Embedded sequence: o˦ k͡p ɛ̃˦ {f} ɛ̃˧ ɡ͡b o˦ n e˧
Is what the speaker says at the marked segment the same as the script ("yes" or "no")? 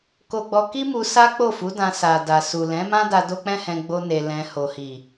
no